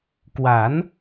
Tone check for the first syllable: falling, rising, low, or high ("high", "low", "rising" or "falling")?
rising